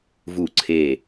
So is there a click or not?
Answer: yes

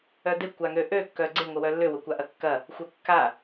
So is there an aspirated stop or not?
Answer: no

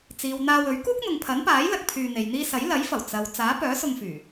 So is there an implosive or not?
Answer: no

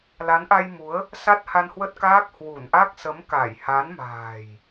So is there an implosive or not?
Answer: no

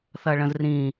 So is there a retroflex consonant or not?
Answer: yes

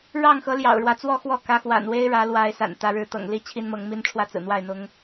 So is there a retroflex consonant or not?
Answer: yes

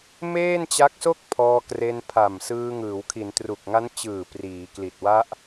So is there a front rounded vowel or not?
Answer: no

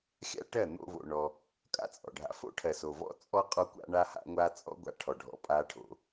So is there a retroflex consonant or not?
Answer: yes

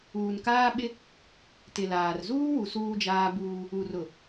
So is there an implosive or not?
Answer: yes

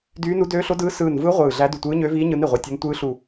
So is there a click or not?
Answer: no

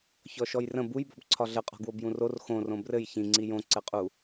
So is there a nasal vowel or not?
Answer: yes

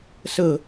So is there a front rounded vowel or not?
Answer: no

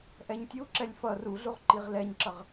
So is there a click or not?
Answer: yes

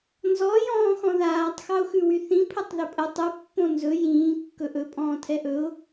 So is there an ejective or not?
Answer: yes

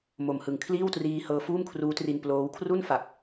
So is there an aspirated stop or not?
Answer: yes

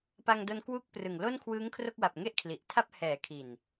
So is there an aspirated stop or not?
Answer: yes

